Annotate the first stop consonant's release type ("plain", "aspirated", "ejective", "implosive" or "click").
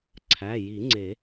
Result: click